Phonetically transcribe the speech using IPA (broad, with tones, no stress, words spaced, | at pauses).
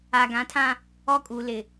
a˨ɡã˨˦tʰã˦ | ɔ˦kʼu˨lɪ˨